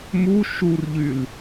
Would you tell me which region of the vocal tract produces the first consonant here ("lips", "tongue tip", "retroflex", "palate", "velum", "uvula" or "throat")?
lips